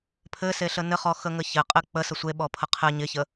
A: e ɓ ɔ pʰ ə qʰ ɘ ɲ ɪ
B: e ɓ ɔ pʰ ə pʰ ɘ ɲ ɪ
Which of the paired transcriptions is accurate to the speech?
A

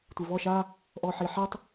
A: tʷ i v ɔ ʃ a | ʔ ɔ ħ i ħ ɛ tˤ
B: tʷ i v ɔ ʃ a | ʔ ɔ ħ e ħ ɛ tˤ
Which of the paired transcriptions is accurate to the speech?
A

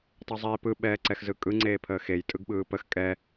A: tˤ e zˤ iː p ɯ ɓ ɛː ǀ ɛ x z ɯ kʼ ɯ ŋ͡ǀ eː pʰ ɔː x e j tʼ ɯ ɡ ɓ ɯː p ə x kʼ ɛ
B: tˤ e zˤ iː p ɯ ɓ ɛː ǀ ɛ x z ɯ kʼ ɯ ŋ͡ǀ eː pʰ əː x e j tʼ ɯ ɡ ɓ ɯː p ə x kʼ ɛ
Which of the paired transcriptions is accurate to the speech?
B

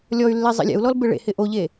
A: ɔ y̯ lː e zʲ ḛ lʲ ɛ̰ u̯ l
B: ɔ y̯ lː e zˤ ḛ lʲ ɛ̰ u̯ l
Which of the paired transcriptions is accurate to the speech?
B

